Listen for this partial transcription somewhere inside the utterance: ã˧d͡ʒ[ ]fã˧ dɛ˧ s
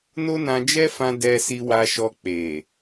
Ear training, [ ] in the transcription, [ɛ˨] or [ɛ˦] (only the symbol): ɛ˦